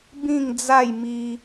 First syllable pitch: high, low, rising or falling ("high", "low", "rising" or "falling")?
falling